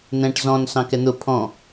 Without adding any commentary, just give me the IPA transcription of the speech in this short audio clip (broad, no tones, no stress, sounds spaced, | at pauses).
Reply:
n̪ ɛ̃ ʈ z ɔ̃ n s ɑ̃ k ɛ n̪ ʊ pʰ ɔ̃